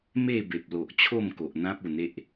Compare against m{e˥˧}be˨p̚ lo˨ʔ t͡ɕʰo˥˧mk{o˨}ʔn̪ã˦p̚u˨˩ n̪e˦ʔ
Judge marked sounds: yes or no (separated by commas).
yes, yes